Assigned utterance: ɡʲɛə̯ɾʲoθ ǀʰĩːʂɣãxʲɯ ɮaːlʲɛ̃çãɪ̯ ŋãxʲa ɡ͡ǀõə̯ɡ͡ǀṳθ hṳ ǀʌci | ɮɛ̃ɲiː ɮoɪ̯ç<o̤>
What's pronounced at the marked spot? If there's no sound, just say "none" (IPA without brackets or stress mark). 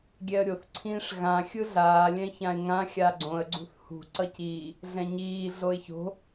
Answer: o̤